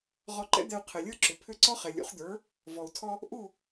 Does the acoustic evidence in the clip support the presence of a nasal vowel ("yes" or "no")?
no